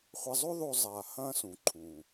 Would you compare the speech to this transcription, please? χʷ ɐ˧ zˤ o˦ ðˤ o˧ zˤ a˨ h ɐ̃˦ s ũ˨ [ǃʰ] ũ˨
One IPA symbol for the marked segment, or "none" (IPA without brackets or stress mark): ǃʰ